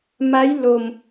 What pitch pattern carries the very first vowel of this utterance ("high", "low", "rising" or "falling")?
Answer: rising